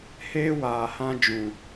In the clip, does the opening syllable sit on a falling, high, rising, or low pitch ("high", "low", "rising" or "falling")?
high